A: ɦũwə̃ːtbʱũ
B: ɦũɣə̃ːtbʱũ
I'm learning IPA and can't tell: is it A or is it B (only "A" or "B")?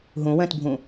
A